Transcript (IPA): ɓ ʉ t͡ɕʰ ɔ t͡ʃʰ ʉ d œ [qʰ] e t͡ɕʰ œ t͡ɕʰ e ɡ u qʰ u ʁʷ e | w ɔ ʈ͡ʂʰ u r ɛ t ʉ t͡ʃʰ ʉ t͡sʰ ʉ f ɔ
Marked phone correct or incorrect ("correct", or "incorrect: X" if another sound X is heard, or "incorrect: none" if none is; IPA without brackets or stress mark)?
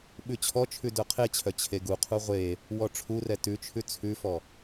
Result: correct